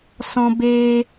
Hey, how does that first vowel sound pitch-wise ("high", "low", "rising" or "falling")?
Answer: high